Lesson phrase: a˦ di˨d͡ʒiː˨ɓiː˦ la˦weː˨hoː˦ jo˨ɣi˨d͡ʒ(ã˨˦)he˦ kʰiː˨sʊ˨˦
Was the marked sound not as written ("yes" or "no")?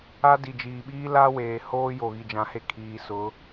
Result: no